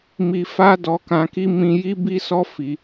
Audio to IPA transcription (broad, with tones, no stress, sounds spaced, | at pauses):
m i˧ f a˦ d ɔ˧ k ã˧ k i˦ m ĩ˧ j i˦ b i˦ s ɔ˦ f i˧